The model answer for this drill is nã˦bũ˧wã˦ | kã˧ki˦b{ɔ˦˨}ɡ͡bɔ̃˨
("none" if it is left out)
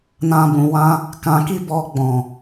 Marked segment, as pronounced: ɔ˧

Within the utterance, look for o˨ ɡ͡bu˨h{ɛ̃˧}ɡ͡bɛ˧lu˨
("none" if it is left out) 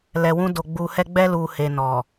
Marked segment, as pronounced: ɛ˧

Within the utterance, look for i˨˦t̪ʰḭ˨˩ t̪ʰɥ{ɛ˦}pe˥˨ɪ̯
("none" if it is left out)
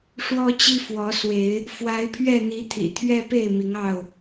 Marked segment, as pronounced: ɛ˦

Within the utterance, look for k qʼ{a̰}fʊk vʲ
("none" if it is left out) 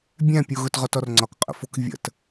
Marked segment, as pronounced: ə̰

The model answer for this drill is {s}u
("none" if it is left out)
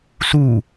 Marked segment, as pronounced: s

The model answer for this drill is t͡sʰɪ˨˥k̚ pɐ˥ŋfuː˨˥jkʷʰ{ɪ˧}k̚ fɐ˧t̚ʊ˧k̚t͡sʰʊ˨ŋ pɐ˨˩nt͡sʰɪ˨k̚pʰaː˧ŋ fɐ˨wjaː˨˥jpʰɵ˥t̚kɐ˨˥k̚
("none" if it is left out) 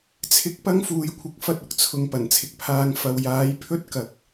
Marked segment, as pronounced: ɪ˨˥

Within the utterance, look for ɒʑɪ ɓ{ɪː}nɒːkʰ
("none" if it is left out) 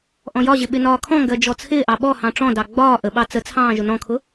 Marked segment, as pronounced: ɪ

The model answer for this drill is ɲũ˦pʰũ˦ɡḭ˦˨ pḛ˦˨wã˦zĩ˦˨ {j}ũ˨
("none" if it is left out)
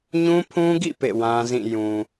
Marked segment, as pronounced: j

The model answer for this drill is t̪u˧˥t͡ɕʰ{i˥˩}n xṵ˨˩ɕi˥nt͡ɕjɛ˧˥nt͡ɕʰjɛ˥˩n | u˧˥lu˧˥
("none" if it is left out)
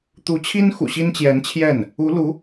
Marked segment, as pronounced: i˥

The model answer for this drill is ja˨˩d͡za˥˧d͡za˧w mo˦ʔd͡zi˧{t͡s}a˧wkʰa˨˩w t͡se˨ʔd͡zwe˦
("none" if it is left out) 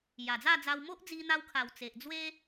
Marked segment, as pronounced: n̪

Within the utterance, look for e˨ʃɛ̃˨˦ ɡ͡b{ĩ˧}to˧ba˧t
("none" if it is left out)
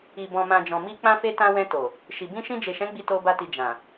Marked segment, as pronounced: i˧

